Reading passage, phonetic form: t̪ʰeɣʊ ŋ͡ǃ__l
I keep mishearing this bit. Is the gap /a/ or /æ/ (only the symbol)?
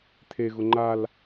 a